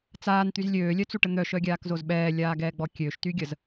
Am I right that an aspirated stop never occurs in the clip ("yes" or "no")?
yes